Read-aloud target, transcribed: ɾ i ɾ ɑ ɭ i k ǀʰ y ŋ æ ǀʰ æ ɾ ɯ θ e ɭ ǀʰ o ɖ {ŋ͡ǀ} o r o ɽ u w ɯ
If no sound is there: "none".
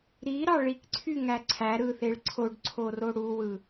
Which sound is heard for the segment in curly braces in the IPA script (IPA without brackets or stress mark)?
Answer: ǀʰ